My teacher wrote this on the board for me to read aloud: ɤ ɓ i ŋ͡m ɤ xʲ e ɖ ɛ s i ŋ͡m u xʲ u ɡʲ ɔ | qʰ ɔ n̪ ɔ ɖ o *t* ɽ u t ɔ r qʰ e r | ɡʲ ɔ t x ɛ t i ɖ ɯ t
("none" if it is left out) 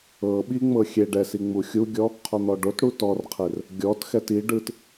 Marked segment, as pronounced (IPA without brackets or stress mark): t